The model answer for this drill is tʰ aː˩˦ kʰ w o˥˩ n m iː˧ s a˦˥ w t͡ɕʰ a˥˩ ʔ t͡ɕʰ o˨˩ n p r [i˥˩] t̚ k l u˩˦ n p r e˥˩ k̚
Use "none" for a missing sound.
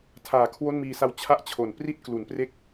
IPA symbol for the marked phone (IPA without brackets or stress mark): i˥˩